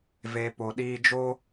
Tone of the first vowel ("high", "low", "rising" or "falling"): low